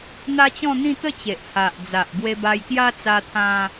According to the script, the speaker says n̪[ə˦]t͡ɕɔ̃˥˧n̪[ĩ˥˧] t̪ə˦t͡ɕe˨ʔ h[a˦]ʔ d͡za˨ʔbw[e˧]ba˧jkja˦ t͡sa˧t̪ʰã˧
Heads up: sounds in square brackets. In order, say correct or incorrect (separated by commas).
incorrect, correct, incorrect, correct